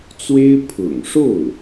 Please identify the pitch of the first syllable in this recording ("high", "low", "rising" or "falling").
high